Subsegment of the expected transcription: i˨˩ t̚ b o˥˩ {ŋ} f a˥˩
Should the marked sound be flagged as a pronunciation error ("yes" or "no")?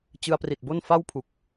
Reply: yes